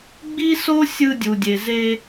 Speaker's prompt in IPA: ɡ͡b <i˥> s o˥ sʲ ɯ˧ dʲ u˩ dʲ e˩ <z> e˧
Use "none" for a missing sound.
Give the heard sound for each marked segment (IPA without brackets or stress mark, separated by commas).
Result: i˥, z